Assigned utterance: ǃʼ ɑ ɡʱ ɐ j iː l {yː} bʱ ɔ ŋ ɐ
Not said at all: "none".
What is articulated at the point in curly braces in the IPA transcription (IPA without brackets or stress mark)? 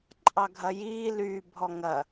yː